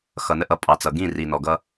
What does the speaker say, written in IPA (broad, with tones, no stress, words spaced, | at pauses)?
xʌ˨nə˦ʔʌ˨ pʼɑ˨t͡sʌ˨ɡĩ˦˨ ri˨nɔ˨ɡʌ˦